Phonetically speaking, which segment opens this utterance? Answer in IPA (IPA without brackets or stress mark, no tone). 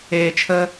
eː